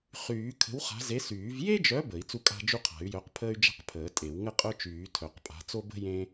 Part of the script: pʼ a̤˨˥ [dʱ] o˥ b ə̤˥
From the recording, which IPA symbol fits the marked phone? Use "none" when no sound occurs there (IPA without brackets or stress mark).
t͡s